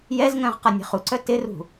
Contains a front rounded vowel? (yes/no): yes